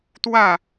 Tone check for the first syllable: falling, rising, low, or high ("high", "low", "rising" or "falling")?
falling